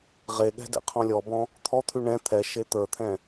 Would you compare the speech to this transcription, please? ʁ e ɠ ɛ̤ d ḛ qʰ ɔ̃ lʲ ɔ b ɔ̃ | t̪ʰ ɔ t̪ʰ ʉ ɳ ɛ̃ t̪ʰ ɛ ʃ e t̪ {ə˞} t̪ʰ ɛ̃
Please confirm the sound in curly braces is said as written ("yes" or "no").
yes